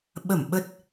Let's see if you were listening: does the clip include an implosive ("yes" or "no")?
yes